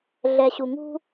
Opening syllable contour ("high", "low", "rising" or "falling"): low